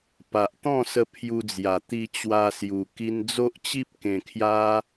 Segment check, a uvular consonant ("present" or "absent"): absent